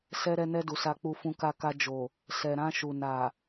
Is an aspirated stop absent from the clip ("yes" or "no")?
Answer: yes